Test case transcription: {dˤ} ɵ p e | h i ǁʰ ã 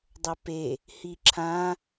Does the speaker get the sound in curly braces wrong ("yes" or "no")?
no